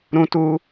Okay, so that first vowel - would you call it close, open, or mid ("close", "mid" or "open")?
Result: close